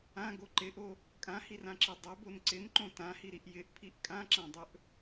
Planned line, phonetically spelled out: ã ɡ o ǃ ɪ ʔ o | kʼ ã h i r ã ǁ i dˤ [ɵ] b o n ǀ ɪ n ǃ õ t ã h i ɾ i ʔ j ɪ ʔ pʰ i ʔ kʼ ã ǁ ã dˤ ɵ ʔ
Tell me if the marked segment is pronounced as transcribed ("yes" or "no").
yes